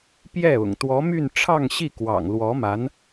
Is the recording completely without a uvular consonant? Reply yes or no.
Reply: yes